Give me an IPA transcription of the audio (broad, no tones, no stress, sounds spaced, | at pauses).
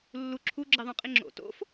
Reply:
lː u ǁʰ u ɡ͡ǁ i ðˤ õ qʼ i ŋ͡ǁ o̰ t o̰ f